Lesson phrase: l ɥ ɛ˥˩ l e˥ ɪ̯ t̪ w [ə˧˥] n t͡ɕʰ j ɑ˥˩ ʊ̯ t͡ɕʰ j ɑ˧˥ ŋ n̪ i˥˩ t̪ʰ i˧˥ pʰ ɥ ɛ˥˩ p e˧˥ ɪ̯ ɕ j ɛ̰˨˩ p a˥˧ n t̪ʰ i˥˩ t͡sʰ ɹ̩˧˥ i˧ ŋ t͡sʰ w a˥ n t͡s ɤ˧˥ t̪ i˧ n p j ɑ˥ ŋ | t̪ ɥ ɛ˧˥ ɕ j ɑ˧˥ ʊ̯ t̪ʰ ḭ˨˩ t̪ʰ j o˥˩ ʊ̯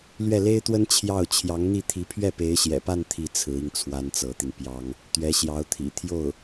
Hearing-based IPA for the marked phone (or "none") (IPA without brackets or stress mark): ə˥